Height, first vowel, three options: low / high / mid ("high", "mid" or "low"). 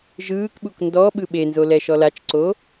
high